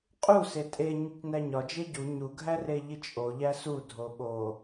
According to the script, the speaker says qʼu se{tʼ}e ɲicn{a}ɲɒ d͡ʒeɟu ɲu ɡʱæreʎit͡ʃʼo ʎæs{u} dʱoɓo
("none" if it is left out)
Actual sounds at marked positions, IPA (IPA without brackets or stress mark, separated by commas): tʼ, æ, u